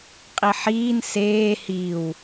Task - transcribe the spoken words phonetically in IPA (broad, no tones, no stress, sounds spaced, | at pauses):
qʼ i ħ iː n s eː h i w